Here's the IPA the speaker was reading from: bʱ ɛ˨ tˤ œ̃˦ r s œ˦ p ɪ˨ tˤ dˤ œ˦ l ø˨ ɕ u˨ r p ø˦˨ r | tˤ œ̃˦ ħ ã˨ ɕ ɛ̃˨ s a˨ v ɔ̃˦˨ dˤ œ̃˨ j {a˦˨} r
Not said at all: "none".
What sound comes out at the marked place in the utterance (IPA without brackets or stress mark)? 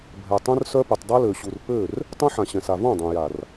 a˨